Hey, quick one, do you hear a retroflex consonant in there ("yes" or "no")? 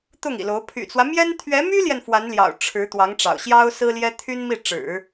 yes